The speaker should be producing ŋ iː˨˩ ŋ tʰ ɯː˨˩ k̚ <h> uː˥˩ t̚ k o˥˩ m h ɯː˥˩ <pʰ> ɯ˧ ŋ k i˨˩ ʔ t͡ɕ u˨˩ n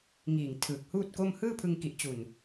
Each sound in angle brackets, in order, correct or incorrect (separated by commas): correct, correct